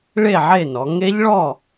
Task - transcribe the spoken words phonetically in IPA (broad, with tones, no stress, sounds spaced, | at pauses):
ɭ e˥˨ ʕ e˥˨ n ɔ˩˧ ŋ e˦˥ ʎ ɭ ɔ˥˨